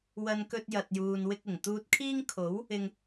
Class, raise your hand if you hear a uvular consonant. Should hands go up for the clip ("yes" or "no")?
no